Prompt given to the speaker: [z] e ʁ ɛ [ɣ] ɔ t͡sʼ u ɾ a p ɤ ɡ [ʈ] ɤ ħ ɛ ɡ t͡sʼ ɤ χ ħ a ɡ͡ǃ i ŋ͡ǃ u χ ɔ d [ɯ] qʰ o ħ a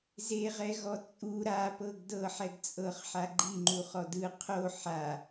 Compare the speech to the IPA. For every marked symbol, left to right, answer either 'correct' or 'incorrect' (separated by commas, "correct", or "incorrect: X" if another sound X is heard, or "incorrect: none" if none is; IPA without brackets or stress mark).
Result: correct, correct, incorrect: d, correct